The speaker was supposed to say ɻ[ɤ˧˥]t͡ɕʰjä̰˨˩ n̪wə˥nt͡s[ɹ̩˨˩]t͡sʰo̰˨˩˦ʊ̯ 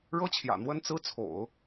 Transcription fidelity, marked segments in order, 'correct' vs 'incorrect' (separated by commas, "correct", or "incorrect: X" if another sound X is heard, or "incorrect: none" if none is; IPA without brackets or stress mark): incorrect: ɤ˥, incorrect: ɹ̩˥